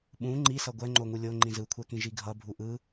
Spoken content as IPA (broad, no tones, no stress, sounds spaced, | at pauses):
ɓ ũ ŋ͡ǃ i s ʌ ɡʷ ɛ ŋ͡ǃ o ŋ u lʲ o ŋ͡ǃ ĩ z ɯ kʷʰ ɛ k ĩ ʒ i ɡʱ ʌ bʱ u ʔ ɯ